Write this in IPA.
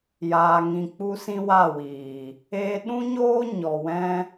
jaː˧ŋĩ˧ k͡pu˦sĩ˦wa˦˨wiː˨ | eː˧ɗũ˦ɲoː˦ ɲɔ˨ wɛ̃˦

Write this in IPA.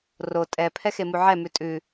ro tʼɛ pʰɛxemuʕɛ mʉtʼʉ

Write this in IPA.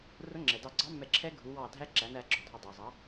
rʊ˧˥ ŋ͡ǁɛ˩dɑ˧˩ɡ͡ǀɑ˧˥ mːɛ˧˩ǁʰɛ˧˥ ɡʱu˩˧wɑ˧˩ dʱæ˧˥ǁæ˩˧næ˩˧ ɡ͡ǁɔ˩dʱɔ˧˩ dˤə˞˩zˤɑ˩˧

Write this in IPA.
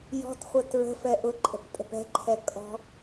jɔ̤tχʷə tɹə̤ fɛʔʊǃʼə̤p tʼə̤pɛ̤ǃʰɛ kʼɔ̤

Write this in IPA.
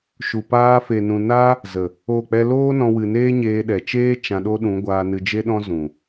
ʃu˨paː˧fe˨nũ˨ na˦ | zə˨ | o˦˨k͡pɛ˦ loː˦nɔ̃˧wɨ˨neː˦ ɲeː˧ɗɛ˨ t͡ʃeː˦ t͡ʃã˧ɗo˦ɗũ˨˦ ɡʷaː˧nɨ˧d͡ʒe˦ɗɔ̃˦ zũ˨

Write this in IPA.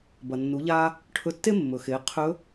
bɐ˩ nːu˩˧ʎaː˧ | ʈʰɵ˧tːe˥mːɵ˩xeː˩˧ qʰɵ˧˥

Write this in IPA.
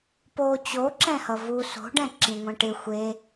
po t͡ɕo ǁɛ̃hʌvu so̤ɖɛ̃ ǁĩŋʷɛ̃ʈɪ xʷe

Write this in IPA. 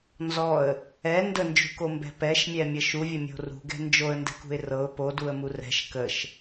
nzɔə̯ | ɛ ndənd͡ʒṳkombɛ̤ pɛʃmʲɛmʲə ʃuvʲəmʲo̤ rṳɡɛ̤ nd͡ʒoə̯ndɛ̤kṳɪ̯ rɤʊ̯ poduə̯mu rɛ̤ʃ kəʃ

